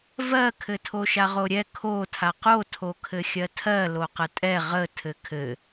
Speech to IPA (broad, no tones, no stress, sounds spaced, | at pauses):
v ɜ kʰ ɘ tʰ o ʃ a ʁ o ɾʲ ɛ kʰ o tʰ a q o tʰ o kʰ ɘ xʲ ɜ tʰ ɜ l o q ə tʼ ɛ ʁ ə tʰ ɘ kʰ ɘ